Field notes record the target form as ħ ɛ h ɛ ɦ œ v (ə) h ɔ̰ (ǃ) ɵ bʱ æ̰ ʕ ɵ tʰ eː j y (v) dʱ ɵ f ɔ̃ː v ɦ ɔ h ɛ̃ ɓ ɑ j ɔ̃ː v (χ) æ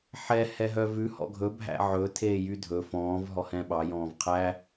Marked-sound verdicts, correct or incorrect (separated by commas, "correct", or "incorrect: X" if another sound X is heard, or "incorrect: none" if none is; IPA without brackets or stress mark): incorrect: ʉ, incorrect: ɡʱ, incorrect: none, incorrect: qʰ